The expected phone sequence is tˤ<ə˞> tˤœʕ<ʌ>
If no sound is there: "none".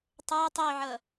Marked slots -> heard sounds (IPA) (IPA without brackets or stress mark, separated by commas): ə˞, ʌ